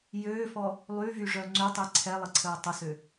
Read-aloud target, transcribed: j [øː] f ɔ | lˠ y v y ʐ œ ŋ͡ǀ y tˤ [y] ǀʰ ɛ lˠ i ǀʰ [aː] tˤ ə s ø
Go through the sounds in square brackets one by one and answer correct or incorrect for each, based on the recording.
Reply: correct, incorrect, incorrect

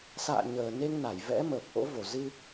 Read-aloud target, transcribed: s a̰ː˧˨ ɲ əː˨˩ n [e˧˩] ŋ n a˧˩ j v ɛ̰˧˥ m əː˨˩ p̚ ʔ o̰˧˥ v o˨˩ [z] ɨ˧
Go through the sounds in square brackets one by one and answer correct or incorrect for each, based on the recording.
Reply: incorrect, correct

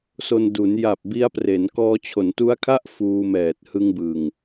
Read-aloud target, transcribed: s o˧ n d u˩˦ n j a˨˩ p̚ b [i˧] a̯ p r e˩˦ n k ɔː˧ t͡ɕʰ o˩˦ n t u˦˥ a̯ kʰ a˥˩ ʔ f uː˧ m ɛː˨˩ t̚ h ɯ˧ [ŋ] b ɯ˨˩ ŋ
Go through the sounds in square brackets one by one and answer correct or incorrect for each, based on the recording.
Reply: incorrect, correct

